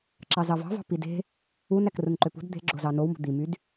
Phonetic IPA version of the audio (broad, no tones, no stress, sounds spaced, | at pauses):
ǁ ɑ z ɑ v ɑ̤ v ɑ̤ p i d e̤ | u n æ k r ɯ ŋ ǃ ø p ṳ d d̪ e̤ ɡ͡ǁ o z ɑ n o w m ṳ d̪ i m y d